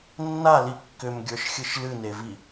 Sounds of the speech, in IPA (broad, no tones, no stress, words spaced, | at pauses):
nːali kːʏmɡʲə˞ʃxʲɨʃ lɨnevi